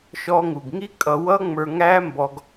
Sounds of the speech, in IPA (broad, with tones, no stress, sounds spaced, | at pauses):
ʃ ɔ˧ ŋ u˨ ɡ ŋ i˦ kʼ ʌ˧ w ʌ˦ ŋ͡m ə˞˧ ŋ æ˦ m b ɔ˦ ɡ